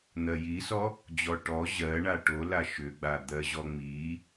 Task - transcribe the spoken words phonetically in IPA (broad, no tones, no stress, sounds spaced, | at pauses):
n̪ ɜ j i s ɔ | d͡ʑ ɔ ʈ ɔ ʑ ɜ ɳ a ʈ o l a ʃ ʏ ɡ͡b a d̪ ɜ ʑ ɔ ŋ͡m i